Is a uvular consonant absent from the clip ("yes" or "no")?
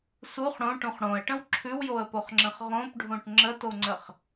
no